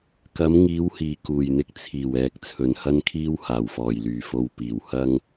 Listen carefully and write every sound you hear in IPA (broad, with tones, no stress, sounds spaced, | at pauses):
k ɐ˨˥ m ŋ iː˨˥ w h iː˨˩ k uː˨˩ j n̪ ɪ˧ k̚ t͡sʰ iː˨˩ w ɛː˨ k̚ t͡sʰ ɵ˨ n h ɐ˥ n kʰ iː˥ w h aː˨˩ w f ɔː˨˩ j l yː˨˩ f o˨ w p iː˨˩ w h ɐ˥ ŋ